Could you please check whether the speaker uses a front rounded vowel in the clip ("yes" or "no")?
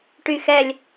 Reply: yes